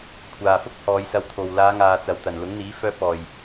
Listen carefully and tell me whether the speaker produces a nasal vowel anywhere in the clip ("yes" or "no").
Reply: no